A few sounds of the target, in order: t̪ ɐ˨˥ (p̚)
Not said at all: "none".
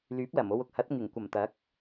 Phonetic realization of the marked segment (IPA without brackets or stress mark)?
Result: k̚